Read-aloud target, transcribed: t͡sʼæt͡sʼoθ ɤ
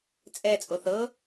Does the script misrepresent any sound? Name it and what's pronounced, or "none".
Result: æ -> ɛ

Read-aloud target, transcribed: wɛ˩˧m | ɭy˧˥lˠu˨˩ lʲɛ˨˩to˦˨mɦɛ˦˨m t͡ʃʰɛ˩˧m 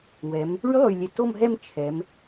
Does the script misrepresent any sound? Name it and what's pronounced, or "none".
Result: u˨˩ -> y˨˩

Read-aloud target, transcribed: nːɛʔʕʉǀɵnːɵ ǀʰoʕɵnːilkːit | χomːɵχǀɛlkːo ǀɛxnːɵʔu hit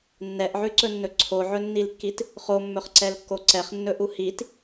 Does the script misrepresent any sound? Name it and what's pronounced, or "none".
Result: x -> χ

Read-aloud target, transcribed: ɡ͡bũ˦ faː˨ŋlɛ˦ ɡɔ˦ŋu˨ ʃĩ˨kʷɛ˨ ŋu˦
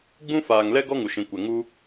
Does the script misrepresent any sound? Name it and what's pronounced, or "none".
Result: none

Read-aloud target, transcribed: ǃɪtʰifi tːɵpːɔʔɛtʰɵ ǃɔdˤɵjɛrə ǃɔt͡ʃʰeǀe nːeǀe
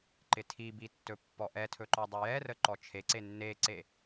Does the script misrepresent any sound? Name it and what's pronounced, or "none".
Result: f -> b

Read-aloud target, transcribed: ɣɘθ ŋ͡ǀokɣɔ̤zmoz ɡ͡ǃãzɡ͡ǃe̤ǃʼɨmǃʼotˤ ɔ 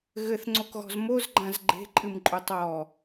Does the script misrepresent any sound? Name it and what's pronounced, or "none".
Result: none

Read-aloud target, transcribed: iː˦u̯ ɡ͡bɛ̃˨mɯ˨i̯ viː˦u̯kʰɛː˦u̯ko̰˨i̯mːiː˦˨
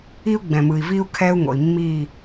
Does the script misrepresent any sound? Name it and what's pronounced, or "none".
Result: k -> ŋ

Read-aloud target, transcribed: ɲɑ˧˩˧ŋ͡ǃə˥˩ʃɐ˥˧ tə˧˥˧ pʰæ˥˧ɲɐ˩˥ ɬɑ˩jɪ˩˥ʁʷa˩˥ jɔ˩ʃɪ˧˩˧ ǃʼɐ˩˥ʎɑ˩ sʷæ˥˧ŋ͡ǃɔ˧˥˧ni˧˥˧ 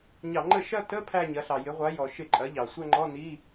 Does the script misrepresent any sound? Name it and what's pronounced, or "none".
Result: none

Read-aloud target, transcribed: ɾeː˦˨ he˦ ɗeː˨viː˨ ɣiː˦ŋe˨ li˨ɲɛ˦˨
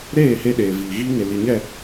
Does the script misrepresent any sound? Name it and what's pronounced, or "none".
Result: none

